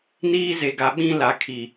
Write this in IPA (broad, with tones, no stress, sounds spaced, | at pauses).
n iː˦ z e˨ ɡ a˨ ɓ ĩ˦ l a˨ kʰ i˨